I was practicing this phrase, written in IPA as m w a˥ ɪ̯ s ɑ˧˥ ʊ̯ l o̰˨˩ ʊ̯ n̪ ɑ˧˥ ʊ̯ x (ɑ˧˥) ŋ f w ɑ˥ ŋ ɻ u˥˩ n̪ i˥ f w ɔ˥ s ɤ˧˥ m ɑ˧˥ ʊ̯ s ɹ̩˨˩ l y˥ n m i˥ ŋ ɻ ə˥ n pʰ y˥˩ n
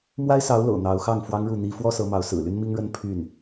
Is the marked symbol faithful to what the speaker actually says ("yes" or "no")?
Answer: no